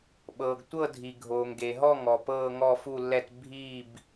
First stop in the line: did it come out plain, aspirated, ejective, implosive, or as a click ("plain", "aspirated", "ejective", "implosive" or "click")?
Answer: implosive